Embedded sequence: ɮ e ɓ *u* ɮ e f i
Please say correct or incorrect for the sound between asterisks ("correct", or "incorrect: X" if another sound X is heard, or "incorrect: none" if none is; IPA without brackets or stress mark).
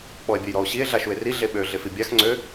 incorrect: ø